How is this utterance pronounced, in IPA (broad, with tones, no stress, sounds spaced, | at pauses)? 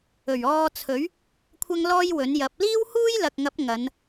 ɵ˨˩ ɥ ɔː˧ t͡sʰ ɵ˨˥ ɥ | kʷʰ ɐ˥ ŋ l ɔː˥ j w ɵ˨˥ n j ɐ˨˥ p̚ l iː˥ w h uː˥ j l ɐ˨ k̚ ŋ ɐ˨˥ p̚ ŋ ɐ˨˧ n